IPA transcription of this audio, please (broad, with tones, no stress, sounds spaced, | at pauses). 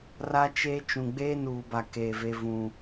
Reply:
r a˦ t͡ʃ eː˦ t͡ʃ ũ˨ ɡ͡b eː˦ n uː˨ b a˨ k e˨ v e˦ v ũ˦